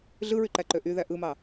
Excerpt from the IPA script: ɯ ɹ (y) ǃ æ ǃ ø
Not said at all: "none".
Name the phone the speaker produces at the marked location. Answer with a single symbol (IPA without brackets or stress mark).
y